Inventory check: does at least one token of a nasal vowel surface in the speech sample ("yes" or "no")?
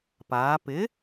no